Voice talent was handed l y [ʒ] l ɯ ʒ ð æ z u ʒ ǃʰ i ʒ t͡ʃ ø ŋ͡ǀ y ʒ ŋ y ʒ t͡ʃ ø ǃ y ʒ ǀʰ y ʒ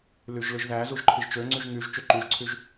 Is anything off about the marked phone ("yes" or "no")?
no